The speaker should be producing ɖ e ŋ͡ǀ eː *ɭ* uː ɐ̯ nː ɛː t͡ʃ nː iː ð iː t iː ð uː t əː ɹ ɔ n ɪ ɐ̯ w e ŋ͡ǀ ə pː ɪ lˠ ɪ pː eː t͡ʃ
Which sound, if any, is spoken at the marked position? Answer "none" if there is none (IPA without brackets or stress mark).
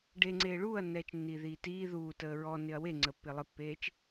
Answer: ɭ